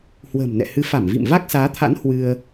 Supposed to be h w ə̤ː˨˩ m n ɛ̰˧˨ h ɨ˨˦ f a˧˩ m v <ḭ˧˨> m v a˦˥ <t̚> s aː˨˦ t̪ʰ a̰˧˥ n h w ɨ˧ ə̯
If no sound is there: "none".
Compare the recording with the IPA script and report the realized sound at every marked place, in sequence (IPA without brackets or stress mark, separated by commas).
ḭ˧˨, k̚